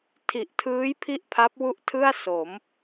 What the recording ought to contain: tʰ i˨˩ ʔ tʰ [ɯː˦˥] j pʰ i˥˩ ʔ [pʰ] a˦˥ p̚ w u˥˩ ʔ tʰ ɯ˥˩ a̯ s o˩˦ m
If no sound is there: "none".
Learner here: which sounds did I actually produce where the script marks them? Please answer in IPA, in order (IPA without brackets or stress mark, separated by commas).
ɯː˦˥, pʰ